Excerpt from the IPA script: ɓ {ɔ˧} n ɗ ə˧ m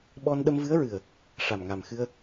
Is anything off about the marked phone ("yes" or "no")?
no